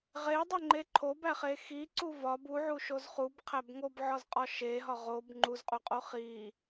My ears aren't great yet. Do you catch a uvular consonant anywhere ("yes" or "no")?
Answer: yes